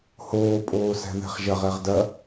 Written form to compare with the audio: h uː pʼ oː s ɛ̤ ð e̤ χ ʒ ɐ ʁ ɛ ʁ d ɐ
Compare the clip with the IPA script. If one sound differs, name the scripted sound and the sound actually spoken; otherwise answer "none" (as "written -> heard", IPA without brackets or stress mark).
uː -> oː